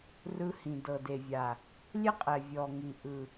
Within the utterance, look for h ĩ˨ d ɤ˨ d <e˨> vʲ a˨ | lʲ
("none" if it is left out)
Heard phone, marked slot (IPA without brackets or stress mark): e˨